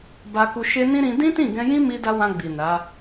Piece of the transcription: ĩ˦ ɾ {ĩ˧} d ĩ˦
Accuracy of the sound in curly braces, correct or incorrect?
correct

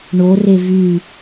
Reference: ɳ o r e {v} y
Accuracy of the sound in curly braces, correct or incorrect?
correct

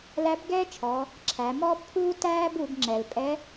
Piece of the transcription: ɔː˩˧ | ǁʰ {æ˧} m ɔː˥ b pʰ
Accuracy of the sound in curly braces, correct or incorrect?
incorrect: æ˩˧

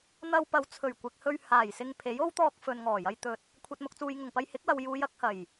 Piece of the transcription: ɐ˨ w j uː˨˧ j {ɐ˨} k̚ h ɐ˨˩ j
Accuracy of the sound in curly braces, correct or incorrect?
incorrect: ɐ˧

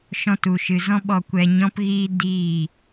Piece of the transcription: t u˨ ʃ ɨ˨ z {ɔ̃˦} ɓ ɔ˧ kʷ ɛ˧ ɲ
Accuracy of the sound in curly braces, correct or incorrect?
correct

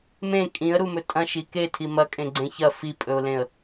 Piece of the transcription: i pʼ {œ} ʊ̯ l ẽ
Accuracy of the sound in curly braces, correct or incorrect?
incorrect: ɵ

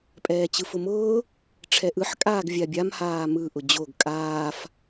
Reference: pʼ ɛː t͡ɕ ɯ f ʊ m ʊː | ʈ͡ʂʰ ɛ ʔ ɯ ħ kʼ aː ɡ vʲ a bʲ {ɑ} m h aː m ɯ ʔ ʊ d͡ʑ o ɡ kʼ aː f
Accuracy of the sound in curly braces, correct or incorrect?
incorrect: a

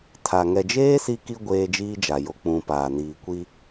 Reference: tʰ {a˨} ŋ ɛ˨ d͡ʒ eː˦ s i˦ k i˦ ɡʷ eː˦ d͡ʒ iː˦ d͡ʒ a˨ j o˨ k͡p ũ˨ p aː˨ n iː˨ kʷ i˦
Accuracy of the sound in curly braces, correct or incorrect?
correct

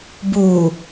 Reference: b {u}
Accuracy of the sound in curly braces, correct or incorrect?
correct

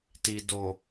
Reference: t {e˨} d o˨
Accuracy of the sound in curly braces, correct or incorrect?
incorrect: i˨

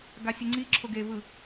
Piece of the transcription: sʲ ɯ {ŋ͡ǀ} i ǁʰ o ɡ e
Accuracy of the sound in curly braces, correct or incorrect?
correct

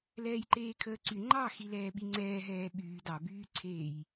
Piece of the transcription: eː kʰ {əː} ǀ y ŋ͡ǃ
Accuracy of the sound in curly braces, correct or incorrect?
correct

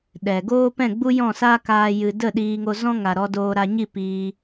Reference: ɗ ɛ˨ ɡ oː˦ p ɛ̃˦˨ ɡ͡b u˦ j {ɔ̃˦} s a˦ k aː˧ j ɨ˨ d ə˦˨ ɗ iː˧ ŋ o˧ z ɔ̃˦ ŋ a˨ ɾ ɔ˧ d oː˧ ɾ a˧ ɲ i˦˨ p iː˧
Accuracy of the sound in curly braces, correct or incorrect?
incorrect: ɔ̃˦˨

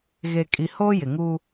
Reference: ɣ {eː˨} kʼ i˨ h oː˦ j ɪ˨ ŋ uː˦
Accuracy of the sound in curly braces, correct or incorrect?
incorrect: e˨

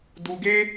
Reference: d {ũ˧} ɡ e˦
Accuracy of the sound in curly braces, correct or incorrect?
incorrect: u˧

